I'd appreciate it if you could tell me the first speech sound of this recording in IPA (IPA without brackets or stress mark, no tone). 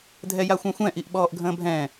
dʱ